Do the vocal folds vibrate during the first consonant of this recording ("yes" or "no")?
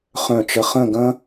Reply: no